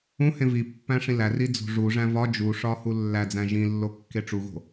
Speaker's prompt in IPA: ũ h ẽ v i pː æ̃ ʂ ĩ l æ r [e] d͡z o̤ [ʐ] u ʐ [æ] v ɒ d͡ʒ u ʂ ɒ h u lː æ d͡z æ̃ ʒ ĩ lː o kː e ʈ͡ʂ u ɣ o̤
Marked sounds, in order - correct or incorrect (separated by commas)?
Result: incorrect, correct, incorrect